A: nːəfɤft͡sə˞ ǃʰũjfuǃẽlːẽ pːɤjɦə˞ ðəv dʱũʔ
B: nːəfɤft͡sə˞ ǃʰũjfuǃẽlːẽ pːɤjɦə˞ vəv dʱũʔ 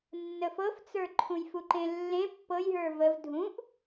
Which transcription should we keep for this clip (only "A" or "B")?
B